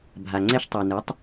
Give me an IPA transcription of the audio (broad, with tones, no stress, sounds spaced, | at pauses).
bʱ a˨ ŋ͡ǀ ɛ˥ ʃ tˤ o˨ n ɯ˨˥ tˤ